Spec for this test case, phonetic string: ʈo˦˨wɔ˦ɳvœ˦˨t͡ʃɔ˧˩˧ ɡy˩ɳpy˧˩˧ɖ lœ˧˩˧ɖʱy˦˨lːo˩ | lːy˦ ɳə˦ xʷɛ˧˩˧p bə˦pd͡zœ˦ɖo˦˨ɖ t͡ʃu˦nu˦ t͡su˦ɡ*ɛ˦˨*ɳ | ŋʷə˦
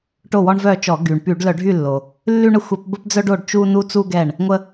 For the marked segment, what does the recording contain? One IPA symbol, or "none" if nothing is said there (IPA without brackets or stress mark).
ɛ˦˨